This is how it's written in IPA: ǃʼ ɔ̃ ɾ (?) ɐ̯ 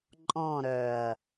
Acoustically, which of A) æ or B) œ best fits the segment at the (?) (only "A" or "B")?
B